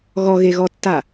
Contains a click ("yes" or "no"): no